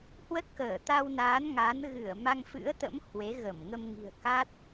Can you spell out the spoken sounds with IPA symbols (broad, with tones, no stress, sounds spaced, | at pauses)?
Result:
h w ə˦˥ t̚ k əː˧˩ t̪ a˧ w n aː˨˦ n ŋ a˨˦ n ɣ ɨ˧˩ ə̯ m a˧ ŋ f ɨ̰˧˥ ə̯ t̪ ə̰˧˥ m h w e˨˦ ɣ ə˧˩ m ŋ ə˧ m ŋ i̤˨˩ ə̯ k a˦˥ t̚